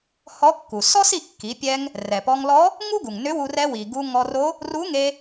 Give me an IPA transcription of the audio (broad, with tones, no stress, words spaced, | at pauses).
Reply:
hɔ˧˥kːu˩ sɔ˥si˧kːi˩˧pʲɛ˧ŋ | rɛ˩pɔ˧ŋlɔ˧˥ | ŋu˥ɡu˩ŋ nʏ˧˥wu˧ rɛ˧wi˩ ɡu˧ŋɔ˧ro˧˥ | ru˧˥ŋe˧